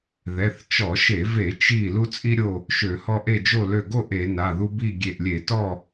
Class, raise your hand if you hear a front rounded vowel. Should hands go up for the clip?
yes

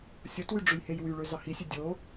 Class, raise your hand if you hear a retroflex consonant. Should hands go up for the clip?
yes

